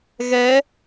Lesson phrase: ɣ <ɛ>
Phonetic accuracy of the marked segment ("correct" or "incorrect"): correct